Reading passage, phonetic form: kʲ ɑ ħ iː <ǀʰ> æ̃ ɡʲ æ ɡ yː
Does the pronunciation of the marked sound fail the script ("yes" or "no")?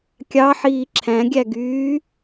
yes